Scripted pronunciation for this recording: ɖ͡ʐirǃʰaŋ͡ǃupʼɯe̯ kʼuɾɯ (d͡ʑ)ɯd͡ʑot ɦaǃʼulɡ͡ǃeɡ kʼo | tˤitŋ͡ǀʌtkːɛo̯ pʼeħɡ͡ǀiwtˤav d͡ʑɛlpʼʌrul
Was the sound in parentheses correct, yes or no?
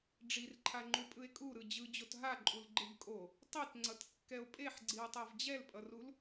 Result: yes